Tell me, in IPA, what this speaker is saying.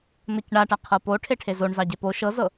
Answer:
n ɤ c ɳ a ʈ a qʰ ɤ p o ʈʰ e ʈʰ e z o ɳ z ɑ ɟ e p o ʃ ɤ z ɤ

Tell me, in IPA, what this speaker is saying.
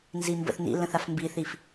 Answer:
n z i m b ə̰ θ n̪ ḭ l ə̃ θ a f m b i θ i f

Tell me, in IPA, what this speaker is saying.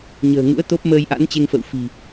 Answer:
ɲ ə̤ː˨˩ ŋ ṵ˧˥ ə̯ t̪ o˦˥ p̚ m əː˧ j ʔ a̰˧˥ n t͡ɕ e˧ ŋ f ə̰˧˨ w f i̤˨˩

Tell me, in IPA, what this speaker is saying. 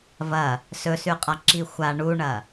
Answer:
v ɐ | s ɵ s ʉ qʼ a ǁ i xʷ a ɳ u ɳ ɐ

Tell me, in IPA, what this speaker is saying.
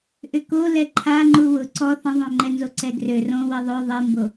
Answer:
ʔ ʏ k o l ɛ ǃʰ a ŋ͡ǃ u w ʊ ǀ ɔ θ ə̃ ðˤ õ ŋ͡ǃ ɛ n z o ǀ ɛ ɡ r ø r õ w i ðˤ ø ðˤ i m b o

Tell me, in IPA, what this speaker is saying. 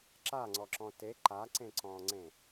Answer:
ǁ a ŋ͡ǀ ɔ ǁ ɔ̃ t e ǃ a ǀ ẽ ǀ ɔ̃ ŋ͡ǀ ẽ

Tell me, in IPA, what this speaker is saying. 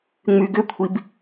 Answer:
ŋ͡m y ɡ ʏ kʷʰ i b

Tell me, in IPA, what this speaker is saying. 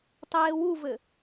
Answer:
tˤ eː w u v ɘ

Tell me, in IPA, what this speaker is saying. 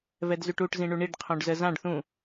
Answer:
v ɛ d z y ʈ u ʈ z ĩ ɳ u ɳ i ɖ qʰ õ ɖ z ə z ã ɖ θ ũ

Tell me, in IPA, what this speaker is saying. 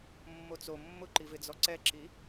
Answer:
mː o t͡s o mː ʊ ǃ i v ɪ d͡z ɔ ǀ ɛ ǁ i

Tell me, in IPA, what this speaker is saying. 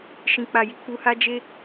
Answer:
ʃ ĩ˨ k͡p a˨ j i˨ k͡p u˧ h a˦ d͡ʒ e˦

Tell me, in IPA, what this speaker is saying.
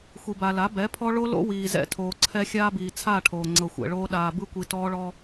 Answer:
xʷ i˨ b a˨ l a˨˦ b ɛ˨˦ pʰ ɔ˦ ɭ o˦ l o̰˦ w iː˨ z ɛ̰˦ tʰ oː˨ ǀʰ ɛ˦ xʲ aː˦ b iː˨ t͡sʰ a˦˨ ʈʰ oː˨ ŋ͡ǀ ɤ˨ xʷ ɛ̰˨ ɭ oː˦ ɗ aː˨ b ɯ˦ kʷ i˨ t ɔː˦ ɭ ɔ˦

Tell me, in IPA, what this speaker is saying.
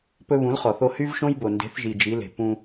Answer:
p ɵ˧ β ũ˨˦ l χ ɔ˨ θ o˧ h y˦ v ʃ õ˦ j b o˨ n d e̤˨˦ θ ʒ i˨ d͡ʒ i˨˦ l e̤˨ p ũ˧

